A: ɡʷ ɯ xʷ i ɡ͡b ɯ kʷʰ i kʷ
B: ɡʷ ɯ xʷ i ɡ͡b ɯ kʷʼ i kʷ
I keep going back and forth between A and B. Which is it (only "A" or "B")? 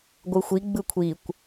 A